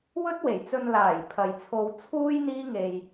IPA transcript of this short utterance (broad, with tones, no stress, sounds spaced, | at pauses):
w ɵ˥ t̚ w e˨˩ j t͡s ɵ˧ n l aː˨˩ j pʰ ɐ˨ j t͡sʰ o˧ w t͡sʰ uː˥ j n̪ iː˥ ŋ e˧ j